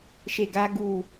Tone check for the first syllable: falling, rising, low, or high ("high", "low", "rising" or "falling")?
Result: falling